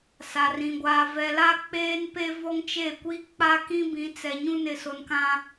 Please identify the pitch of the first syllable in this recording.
low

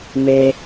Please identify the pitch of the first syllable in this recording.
high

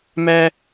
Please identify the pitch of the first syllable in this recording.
high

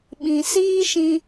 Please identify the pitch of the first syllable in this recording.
low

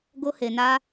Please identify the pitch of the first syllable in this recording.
high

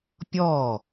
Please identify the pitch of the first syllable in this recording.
falling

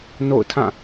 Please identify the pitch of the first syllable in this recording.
falling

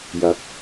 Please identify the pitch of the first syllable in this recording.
rising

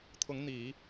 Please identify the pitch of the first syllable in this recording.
rising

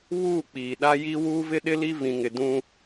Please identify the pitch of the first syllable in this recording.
falling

